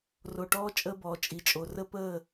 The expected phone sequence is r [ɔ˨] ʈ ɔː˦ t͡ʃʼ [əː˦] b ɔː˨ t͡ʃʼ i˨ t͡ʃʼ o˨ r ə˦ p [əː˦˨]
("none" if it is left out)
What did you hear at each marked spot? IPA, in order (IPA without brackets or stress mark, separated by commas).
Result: o˨, əː˦, əː˦˨